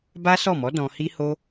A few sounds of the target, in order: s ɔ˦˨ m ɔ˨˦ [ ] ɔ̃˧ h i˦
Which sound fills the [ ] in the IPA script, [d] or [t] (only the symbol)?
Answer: d